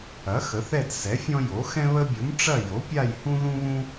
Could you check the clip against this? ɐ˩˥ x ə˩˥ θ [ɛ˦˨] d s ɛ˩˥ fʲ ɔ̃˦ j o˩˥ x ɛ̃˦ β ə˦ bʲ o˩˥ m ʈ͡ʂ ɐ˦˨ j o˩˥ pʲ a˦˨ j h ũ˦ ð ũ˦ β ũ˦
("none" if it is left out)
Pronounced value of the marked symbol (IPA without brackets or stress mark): ɛ˦˨